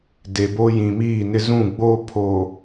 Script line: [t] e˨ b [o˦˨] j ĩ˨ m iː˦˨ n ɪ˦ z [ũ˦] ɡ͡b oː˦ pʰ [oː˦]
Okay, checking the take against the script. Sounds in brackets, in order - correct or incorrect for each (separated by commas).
incorrect, incorrect, incorrect, incorrect